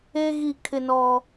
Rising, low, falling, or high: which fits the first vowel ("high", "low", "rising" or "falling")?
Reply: high